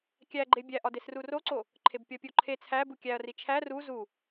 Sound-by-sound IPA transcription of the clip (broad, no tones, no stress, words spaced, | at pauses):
kʲæɡ͡ǃe bʲæʔɒdes ruroǀo | ǃʰebpʲɒpʲoǃʰe t͡sʰæbu kʲæɐ̯ri t͡ʃʰæ ru zu